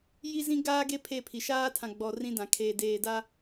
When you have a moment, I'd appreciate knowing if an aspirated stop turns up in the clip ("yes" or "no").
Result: yes